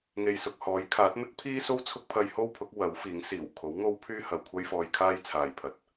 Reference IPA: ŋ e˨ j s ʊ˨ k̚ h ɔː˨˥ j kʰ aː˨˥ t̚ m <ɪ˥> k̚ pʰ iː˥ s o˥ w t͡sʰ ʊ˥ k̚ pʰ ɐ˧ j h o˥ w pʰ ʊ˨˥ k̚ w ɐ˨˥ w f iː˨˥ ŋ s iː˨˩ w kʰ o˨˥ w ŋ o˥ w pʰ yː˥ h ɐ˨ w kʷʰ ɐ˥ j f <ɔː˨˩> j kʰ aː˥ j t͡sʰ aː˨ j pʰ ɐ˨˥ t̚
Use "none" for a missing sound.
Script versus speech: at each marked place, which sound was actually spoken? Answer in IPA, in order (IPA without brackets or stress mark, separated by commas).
ɪ˥, ɔː˧